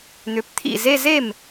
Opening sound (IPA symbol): n̪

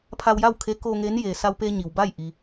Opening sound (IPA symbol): pʰ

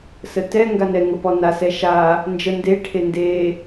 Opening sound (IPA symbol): s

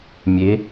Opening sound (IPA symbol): mʲ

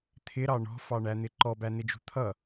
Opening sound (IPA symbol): t̪ʰ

